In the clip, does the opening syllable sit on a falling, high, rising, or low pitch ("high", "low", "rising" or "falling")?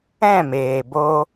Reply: falling